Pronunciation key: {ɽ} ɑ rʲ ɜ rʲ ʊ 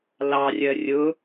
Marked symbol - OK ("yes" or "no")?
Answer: no